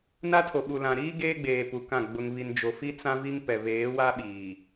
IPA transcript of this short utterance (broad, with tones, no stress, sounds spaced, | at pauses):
n a˦ tʰ o˨ ɓ u˨ l ã˨ ɾ iː˦ ɡ eː˦ ɡ͡b eː˨ p u˨ k ã˦˨ ɡ͡b ʊ˨ ŋ β i˨ n d͡ʒ o˨ f i˦ t͡s ã˦ v i˦ ŋ p ɛ˨ β eː˨˦ w a˦ ɓ iː˨